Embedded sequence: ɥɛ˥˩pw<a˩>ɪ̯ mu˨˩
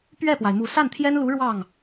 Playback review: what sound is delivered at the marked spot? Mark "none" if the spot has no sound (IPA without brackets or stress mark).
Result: a˩